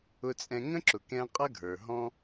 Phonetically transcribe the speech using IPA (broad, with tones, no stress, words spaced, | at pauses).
ʊ˧t͡sʼɛ̃˧ ŋə̃˦ǁʊ˨kɛ̃˧ qʼʌ˦ɡʱə˞˨ɦɔ̃˦